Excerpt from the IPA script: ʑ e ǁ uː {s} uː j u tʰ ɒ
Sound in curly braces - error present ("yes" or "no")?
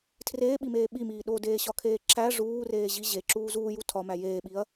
yes